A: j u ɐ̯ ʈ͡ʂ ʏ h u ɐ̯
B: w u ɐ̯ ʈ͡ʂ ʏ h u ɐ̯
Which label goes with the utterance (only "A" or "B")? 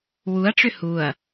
B